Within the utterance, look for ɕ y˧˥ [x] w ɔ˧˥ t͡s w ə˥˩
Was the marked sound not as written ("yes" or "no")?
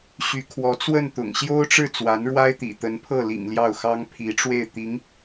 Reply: yes